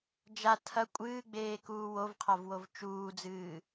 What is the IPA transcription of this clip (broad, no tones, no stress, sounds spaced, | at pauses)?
d͡ʒ a tʰ ɐ kʷʼ ɨː ɡ͡b eː k uː w o v qʰ a v w o v t͡ʃ uː d͡z ɨː